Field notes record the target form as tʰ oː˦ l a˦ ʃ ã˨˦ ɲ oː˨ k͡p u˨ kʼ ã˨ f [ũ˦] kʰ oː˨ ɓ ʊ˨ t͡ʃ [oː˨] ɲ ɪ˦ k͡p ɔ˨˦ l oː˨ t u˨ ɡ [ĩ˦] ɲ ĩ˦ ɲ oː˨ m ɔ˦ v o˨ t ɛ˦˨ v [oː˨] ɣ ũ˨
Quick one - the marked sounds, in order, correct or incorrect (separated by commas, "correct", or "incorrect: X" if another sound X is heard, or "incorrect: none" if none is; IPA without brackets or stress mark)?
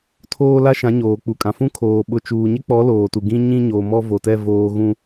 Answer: correct, incorrect: uː˨, correct, correct